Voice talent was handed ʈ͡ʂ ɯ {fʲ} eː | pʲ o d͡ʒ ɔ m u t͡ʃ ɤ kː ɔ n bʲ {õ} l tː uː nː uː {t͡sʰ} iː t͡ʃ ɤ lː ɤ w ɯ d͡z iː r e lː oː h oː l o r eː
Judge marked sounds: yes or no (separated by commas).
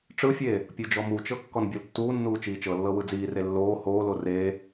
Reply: yes, no, no